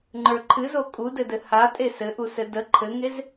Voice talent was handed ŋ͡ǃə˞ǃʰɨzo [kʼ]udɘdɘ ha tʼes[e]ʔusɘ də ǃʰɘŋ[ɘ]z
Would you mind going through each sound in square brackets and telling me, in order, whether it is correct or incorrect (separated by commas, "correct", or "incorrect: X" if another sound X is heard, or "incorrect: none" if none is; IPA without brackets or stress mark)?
correct, incorrect: ɘ, incorrect: e